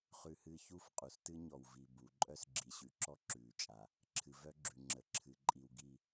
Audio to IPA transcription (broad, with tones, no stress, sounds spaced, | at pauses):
χ ʉ˦ h ɨː˦ ç u˦ f qʼ u˨ s t ɨ˦ ɲ ɔ˨ w v i˨ b u˨˦ ǃʼ œ˦ s ɡ͡ǁ i˨ ɕ ʉ˨ ǁ ɔ˦ ǁ ʉː˨ t͡ʃʼ a˨ | ǁʰ ɨ˨ v œ˦ ɡ͡ǁ ʉ˨ ŋ͡ǁ ə˨ ǁʰ ɨ˨ ǃʼ i˨ w ɡ i˦˨